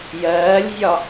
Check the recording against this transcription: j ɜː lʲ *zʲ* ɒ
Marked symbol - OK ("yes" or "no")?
yes